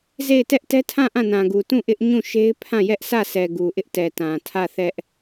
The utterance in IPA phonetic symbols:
z e˦˨ ɪ̯ t ɛ˦ ʔ t ɛ˦ tʰ ã˦˨ ʔ ã˦˨ n ã˨ ɡ u˨ t ũ˦˨ ʔ ɪ˦ ʔ ɲ ũ˦˨ ʃ e˦ ɪ̯ pʰ ã˦˨ j ɛ˦ ʔ s ä˦˨ s ɛ˨ ɡ u˨ ʔ ɪ˦ ʔ t ɛ˨ t ã˨ tʰ ä˦˨ θ ɛ˦ ʔ

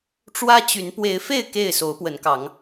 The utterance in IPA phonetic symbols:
ʈ͡ʂ w ä˦ t͡ɕ y˨˦ n p w e˨˦ ɪ̯ f e˥˨ ɪ̯ k e˥˨ ɪ̯ s o˨˦ ʊ̯ p w ə˨˦ n k ɑ˨˦ ŋ

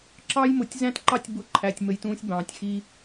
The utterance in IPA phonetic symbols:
ǁ ɑ˦ j m ʊ˨ tʲ z æ̃˦ t ǃ ɑ˦ tʲ b ʊ˦˨ ǃʰ æ˨ tʲ m ə˨ j t ũː˦ sʲ b ɑ̃ː˨ tʲ x i˦

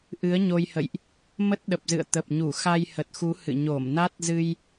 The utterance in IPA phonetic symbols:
ʔ ɨ˨˦ ə̯ ɲ o˧ j h ə̰˧˨ j ʔ | m ə˦˥ t̚ ɗ ə˨˩ p̚ z ɨ̰˧˨ ə̯ t̪ ə˨˩ p̚ ɲ u˧˩ x a˧ j h ə˨˩ t̚ x u˨˦ h ɨ̰˧˨ ɲ o˧˩ m n a˦˥ t̚ z ɨ˧ j

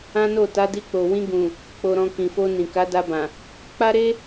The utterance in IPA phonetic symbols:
ã˦ n o˦˨ t a˨˦ d i˧ k͡p o˨ w ĩ˧ ɡ ũ˨ | k͡p o˧ ɾ ɔ̃˧ k ĩ˨ f o˧ n ĩ˨ k a˨˦ d a˧ b ã˨ | k͡p a˦ ɾ e˦

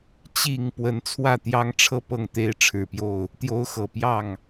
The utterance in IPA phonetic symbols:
t͡ɕ i˨˩ ŋ p w ə˧˥ n t͡sʰ w ä˥˩ t̪ j ɑ˥ ŋ ʈ͡ʂʰ ɤ˥˧ p ɤ˥˩ ŋ t̪ e˥ ɪ̯ ʈ͡ʂʰ ɻ̩˨˩ p j o˥˩ ʊ̯ | t̪ j o˥ ʊ̯ x ɤ˨˩ p j ɑ˥˩ ŋ

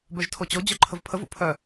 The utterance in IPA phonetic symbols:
b œ ʒ tʰ o t͡ɕ o d͡ʑ œ ǃʰ ə v pʰ ə v ṵ pʰ œ

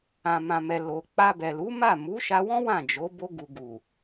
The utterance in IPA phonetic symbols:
ã˨ m ã˨ m ɛ˨ l o˨ k͡p a˧ b ɛ˨ l u˨˦ m a˦˨ m u˨˦ ʃ a˧ w ɔ̃˦ w ã˦˨ d͡ʒ o˨˦ b o˧ ɡ u˨ ɡ u˨

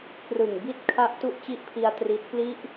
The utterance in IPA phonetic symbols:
k r ɯ˨˩ ŋ b i˦˥ t̚ kʰ a˦˥ ʔ t u˦˥ ʔ t͡ɕ i˦˥ ʔ pʰ i˧ a̯ t r i˦˥ t̚ p l i˦˥ ʔ

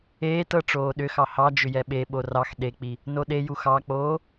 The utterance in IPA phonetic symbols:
eː t ɤ ʈ͡ʂ oː ɗ ʏ x ɑ h ɑ d͡ʒ ʏ j ɛ ɓ e ɓ o r ɑ x ɗ e k͡p i | n o ɗ e j u x ɑ k͡p oː

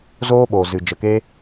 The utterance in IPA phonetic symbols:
z oː˦ ɓ oː˨ z ɨ˨ d͡ʒ ə˨ k eː˧

